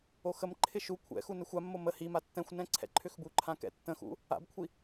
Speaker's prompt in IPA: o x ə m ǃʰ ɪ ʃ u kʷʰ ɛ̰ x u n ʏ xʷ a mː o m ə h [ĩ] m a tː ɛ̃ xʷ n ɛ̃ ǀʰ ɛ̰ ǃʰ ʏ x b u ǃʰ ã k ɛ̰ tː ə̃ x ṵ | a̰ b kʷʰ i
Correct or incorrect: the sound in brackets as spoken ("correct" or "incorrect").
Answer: incorrect